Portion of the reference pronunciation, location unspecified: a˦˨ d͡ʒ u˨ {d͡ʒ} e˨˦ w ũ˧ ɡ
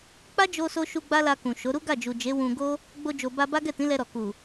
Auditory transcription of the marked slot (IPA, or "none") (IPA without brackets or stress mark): d͡ʒ